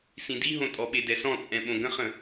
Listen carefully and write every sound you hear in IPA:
s ĩ d i ɦ õ tʼ ɔ ɓ e d ɛ s ɔ̃ t͡sʼ ɛ̃ ɓ õ ɡ ə̃ χ ə̃

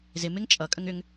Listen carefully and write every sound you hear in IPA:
z ɪ m ɪ ŋ t͡ʃʼ ʌ kʼ ə ŋ ʏ ŋ

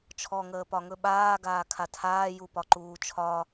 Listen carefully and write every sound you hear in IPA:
t͡ʃʰ ɔ ŋ əː p ɒ ŋ ɵ ɓ aː ɡ aː kʰ a tʰ aː j u p ɒ ǃ uː t͡ʃʰ ɒ

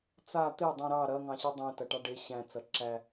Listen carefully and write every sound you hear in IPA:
t͡s a t̪ e dˤ ĩ ɾ ɑ ɾ ɐ ŋ ɑ̃ ɕ i dˤ ĩ t ɐ ʈ ɑ ɖ e ɕ æ̃ t͡s ɐ ǁ æ

